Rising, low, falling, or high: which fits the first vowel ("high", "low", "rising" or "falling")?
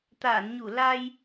low